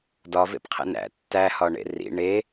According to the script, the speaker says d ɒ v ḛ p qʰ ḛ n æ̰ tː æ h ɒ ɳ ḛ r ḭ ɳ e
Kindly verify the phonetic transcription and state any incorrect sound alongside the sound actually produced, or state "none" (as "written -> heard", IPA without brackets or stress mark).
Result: none